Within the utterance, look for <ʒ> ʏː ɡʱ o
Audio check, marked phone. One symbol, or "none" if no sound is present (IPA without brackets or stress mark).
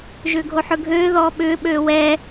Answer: ʒ